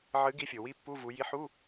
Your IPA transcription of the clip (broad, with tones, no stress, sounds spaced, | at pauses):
ʕ ɨ˨˥ ɡ i˨˥ fʲ o˩ w i˧˥˧ pː u˧˥˧ v u˩˧ j i˨˥ ħ u˧˥˧